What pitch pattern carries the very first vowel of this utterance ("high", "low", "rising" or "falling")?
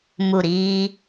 falling